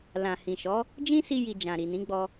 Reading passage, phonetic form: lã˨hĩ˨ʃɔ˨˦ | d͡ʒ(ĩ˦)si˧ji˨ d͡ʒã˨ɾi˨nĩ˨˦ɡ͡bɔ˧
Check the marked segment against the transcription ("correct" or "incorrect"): correct